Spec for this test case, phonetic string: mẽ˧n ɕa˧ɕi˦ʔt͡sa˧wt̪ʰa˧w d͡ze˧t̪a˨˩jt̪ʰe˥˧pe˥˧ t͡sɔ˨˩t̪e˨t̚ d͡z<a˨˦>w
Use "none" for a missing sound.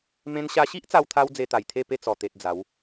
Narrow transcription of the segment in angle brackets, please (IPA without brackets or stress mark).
a˨˦